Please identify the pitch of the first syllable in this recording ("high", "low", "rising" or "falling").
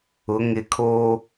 rising